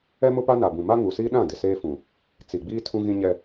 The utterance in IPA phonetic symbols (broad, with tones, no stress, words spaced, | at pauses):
ɛ˦mʊ˦pa˦ na˨bũ˨ ma˦ŋuː˨siː˦ ɗã˦˨ dɪ˨seː˦fũ˨ | t͡si˨ɡ͡biː˦ tʰũ˦ɣĩ˦ɲɛ˦